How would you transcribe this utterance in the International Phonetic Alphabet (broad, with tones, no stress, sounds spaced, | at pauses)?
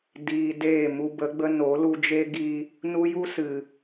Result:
d iː˧ d eː˦˨ m u˧ b ə˨˦ ɡ͡b ə˦ n o˨˦ l u˧ d͡ʒ e˦ ɡ i˧ | n u˦ j u˦ s ɨ˨